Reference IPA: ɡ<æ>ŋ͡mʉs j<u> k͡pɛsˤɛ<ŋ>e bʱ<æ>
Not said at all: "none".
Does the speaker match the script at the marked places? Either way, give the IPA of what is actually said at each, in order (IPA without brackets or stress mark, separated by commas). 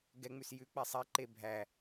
ɛ, ʉ, ǃ, æ